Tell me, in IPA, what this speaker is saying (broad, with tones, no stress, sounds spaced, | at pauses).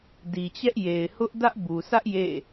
d i˨ t͡ɕ ɛ˦ ʔ j e˨ ɪ̯ h ʊ˦ ʔ d ä˦ ʔ b u˨ s ä˦ ʔ j ḛ˦˨